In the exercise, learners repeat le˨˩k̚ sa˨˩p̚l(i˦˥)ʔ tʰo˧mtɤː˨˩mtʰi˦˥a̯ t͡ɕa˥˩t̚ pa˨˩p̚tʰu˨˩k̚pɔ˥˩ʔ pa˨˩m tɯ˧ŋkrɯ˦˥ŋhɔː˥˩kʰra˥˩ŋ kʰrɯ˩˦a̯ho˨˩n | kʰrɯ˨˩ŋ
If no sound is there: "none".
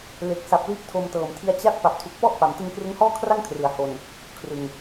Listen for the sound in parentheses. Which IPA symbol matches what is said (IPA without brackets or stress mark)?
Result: i˦˥